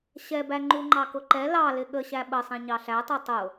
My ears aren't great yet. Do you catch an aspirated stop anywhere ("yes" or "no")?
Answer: no